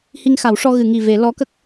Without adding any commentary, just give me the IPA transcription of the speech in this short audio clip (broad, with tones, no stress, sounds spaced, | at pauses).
h i˧ ŋ x a˨˩˦ w ʂ ɔ˧ ɣ ɨ˨˩˨ ŋ i˨˩ v e˨˩˦ l ɔ˧˥ k ə˦˥ k̚